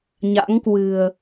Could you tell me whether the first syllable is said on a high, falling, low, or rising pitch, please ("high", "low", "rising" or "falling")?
rising